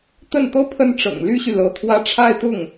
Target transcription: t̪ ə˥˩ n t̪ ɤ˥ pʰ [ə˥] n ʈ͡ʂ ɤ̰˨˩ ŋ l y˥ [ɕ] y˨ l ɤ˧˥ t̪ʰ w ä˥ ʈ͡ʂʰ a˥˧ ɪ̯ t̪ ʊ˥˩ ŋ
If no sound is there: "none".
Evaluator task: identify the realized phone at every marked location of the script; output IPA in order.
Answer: ə˥, ɕ

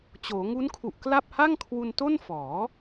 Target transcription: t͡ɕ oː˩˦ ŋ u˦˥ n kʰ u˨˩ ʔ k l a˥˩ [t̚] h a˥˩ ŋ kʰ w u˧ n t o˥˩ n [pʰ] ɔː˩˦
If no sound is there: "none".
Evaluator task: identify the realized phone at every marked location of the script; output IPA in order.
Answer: p̚, f

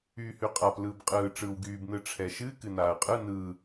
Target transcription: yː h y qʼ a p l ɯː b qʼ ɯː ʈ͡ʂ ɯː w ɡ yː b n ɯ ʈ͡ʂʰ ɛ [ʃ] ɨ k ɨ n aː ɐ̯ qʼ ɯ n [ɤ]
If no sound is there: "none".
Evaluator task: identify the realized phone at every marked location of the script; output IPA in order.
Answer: ʃ, ɯ

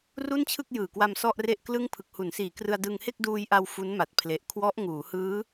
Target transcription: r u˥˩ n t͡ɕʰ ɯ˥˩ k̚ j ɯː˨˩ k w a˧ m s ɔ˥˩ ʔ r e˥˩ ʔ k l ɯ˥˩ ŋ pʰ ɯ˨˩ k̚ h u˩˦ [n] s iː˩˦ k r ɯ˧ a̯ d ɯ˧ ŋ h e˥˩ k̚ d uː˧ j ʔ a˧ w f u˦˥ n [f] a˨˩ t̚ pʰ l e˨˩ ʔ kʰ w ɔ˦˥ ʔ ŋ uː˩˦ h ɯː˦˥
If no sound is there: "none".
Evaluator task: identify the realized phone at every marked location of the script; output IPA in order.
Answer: n, m

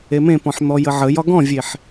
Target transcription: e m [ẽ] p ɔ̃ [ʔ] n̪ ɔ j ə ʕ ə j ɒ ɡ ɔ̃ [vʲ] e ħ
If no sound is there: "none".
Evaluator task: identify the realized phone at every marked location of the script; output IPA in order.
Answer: ẽ, ħ, vʲ

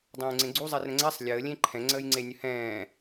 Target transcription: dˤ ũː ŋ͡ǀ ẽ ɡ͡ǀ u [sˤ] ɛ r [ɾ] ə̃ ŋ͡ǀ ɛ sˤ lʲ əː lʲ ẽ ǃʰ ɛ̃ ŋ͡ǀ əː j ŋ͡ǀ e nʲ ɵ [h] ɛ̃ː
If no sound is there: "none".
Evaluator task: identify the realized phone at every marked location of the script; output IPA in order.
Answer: zˤ, ɾ, h

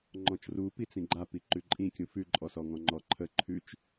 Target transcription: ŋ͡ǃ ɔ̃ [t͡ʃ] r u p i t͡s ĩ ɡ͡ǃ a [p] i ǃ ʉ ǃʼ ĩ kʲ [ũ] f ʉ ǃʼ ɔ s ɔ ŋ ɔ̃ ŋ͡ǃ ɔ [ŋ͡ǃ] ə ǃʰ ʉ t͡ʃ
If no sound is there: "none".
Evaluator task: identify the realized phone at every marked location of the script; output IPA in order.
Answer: t͡ʃ, p, ũ, ǃʰ

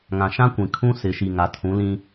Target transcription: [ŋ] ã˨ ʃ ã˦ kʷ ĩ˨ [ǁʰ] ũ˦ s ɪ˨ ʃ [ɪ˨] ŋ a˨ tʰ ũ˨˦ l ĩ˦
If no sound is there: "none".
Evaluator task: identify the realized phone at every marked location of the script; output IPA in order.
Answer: ŋ, kʰ, i˨

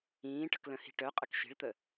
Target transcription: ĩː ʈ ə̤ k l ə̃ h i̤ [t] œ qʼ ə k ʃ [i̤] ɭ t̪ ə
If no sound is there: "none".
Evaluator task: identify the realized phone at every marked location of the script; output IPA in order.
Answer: ʈ, i̤

